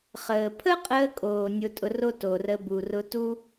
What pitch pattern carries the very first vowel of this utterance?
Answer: low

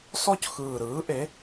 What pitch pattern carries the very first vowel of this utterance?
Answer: falling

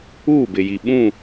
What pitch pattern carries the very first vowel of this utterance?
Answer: falling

